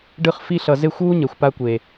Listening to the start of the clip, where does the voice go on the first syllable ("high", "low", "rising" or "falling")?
falling